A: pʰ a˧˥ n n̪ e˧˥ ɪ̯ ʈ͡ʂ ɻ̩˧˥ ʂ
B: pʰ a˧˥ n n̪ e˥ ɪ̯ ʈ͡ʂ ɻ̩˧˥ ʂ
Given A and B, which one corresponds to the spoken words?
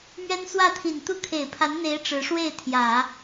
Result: A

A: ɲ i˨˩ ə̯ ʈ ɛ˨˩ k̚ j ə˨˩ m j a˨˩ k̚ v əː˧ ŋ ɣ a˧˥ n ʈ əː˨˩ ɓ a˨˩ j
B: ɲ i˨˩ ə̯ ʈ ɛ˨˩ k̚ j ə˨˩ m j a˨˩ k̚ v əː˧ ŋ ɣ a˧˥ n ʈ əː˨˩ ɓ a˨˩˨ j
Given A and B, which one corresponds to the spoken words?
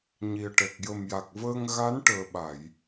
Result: B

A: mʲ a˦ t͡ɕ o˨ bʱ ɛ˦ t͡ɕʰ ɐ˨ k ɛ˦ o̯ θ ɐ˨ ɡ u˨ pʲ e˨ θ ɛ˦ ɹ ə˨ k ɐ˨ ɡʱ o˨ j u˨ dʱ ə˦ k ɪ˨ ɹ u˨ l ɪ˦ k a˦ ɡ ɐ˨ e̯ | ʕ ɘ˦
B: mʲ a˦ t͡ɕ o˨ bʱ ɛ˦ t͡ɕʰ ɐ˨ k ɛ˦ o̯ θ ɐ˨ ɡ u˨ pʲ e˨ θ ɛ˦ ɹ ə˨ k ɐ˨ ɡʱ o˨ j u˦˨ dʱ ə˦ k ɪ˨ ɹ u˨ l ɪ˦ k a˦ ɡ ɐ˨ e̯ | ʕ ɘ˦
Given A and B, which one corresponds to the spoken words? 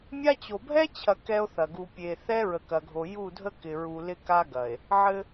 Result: B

